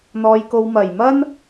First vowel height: mid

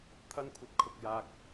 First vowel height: low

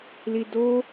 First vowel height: high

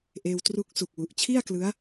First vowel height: mid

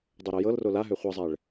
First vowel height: high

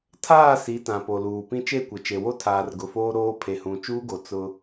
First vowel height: low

